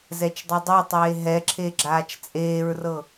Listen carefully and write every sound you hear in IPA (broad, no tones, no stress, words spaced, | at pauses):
zɛt͡ʃdˤidˤetˤeː ɦɛǁʰe ɡ͡ǁaːt͡ʃt͡sʼeːɹrɤ